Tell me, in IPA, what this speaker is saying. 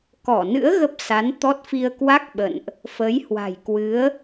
k ɔ˧˩ n ɨ̰˧˥ ə̯ ɣ ə˦˥ p̚ s a˨˦ n t̪ ɔ˦˥ t̚ f i˧ ə̯ k w a˦˥ k̚ ɓ ə̰˧˨ n ʔ | f ə˨˦ j h w a̤˨˩ j k w ɨ˨˦ ə̯

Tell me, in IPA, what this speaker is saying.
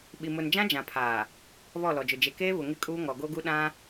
ɓ i˨ m ʊ˨ n d͡ʒ ã˦ d͡ʒ ã˨ pʰ aː˨ | β ɔ˦˨ l ɔ˨ d͡ʒ ʊ˨ d͡ʒ e˨ k eː˦ β ʊ˨ ŋ ɪ˦ kʼ uː˦ ŋ ɔ˨ ɡ o˦ ɡ u˦ ɗ ã˦

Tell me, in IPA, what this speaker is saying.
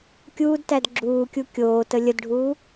kʲ uː d t æ d ɡ͡ǁ uː kʲ u kʲ oː t ə lʲ ə d ɖʱ uː

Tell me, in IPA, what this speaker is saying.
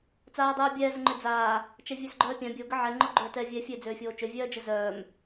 t͡s aː dˤ œː bʲ ɛː z ə ŋ͡ǃ ø d͡z aː | t͡ʃ ɛ vʲ ø z ɡ͡ǃ œː pʲ ã bʲ o ɡ ə ʕ ɛ ŋ͡ǃ o ɡ͡ǃ øː t ɛː vʲ ɛ fʲ ø d͡z øː fʲ oː t͡ʃ ø vʲ œː d͡ʒ ɘ z œː m

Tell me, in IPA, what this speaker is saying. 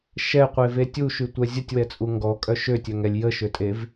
ʃ ɛ qʷ e v e tʲ u ʃ y tʷ ɛ zʲ ə tʲ w ɛ t͡sʼ u ŋ ɡ ɔ kʼ œ ʃ ø tʲ œ ŋ ɛ lʲ j ə ʃ ø tʼ e v

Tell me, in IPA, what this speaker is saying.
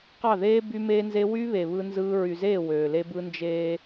q ɑ˦˨ ð eː˦ b y˦ m eː˦ n z e˦ w y˦ β e˨ β ɯ˦ n z ɯː˦ ɹ y˨ z eː˦˨ w øː˨ l e˦ b ɯ˦ n d͡ʒ eː˦

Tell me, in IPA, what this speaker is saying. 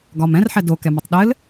ɡ ɒ m ɛ̃ r ħ ɛ d o k ɛ m ɘ tˤ ɗ ɘ l

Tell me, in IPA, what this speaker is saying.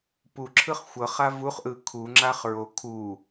p u ǁʰ ɯ χ xʷ ɤ χ a v u χ ʔ ɯ kʰ u ŋ͡ǁ a χ ɹ o kʰ u

